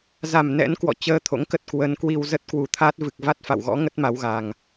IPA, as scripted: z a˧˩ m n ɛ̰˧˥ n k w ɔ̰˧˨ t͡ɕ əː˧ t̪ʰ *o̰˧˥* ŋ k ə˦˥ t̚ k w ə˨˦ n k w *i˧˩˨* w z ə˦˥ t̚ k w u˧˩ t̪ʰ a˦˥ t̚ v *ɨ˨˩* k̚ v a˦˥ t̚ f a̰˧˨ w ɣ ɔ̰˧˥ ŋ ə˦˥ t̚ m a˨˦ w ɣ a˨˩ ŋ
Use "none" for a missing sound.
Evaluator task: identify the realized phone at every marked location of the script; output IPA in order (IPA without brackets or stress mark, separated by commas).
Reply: o̰˧˥, i˧, ɨ˨˩